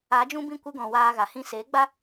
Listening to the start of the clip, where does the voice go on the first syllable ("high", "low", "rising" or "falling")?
rising